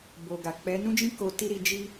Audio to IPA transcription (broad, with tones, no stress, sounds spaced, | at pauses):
b o˨ ɡ a˨ k͡p ɛ˨˦ n ũ˦ d͡ʒ ĩ˦ k o˧ t i˦ ɾ i˧ d͡ʒ i˦